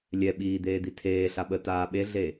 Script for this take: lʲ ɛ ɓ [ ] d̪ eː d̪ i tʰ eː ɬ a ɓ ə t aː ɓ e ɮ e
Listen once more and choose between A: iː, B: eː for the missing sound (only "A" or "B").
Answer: A